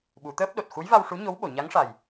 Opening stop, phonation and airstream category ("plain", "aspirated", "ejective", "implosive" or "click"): implosive